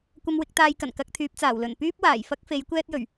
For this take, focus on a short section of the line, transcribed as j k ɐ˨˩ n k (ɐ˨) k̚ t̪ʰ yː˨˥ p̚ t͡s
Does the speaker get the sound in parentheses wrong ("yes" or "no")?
no